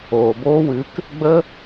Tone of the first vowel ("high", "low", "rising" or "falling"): low